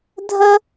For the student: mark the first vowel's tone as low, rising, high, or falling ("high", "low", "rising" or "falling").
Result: high